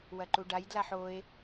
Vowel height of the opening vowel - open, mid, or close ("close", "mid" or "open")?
open